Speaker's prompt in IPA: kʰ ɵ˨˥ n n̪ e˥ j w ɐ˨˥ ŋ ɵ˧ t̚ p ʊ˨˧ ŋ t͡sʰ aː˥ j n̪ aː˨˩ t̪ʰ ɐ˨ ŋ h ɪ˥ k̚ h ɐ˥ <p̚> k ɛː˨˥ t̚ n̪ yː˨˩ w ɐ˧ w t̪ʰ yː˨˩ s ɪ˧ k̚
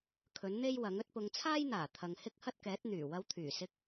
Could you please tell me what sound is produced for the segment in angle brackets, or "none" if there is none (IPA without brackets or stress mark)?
t̚